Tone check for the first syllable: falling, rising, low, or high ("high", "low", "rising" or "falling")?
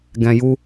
low